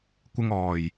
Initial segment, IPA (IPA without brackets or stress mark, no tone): kʷ